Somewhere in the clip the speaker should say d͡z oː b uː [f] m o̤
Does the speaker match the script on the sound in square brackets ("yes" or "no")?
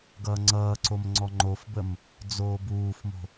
yes